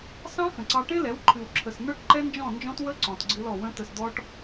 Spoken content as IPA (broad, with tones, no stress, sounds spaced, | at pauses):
s ɑ̃˦ x ə̃˨ ǀ ɑ˧ ʈ ẽ˦ l ɛ˨˦ w ǃʰ ɨ˨ w ǁʰ ə˨ s n ə˞˦ ʈ ǃ ɛ˦ n d͡ʒ ɔ̃˦˨ n d͡ʒ ɔ̃˦ t w ə˦ ǀ ɔ̃˨ t ɡ͡ǀ ɨ˧ l ɔ˨ w ə̃˧ t ə˨ s d̪ ɔ˧ ʈ